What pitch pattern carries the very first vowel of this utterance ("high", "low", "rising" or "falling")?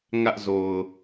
high